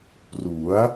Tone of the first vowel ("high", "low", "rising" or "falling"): rising